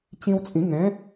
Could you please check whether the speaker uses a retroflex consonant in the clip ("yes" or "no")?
no